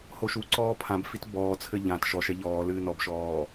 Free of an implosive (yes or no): yes